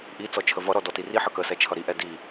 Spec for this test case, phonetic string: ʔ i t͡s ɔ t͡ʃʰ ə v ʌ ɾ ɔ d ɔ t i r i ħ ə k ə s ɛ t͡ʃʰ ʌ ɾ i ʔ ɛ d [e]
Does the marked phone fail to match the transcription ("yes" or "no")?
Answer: yes